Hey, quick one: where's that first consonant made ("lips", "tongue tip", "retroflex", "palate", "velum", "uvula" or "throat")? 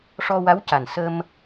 retroflex